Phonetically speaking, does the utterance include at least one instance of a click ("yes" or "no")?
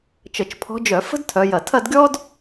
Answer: no